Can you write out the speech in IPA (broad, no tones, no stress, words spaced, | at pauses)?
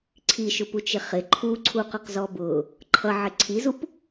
ǀʰiʃʊput͡ʃɪ χɪ ǃʰuǀʰuqʊqzɔ bʊ | ǃʰʌʕɪ ǀʰizup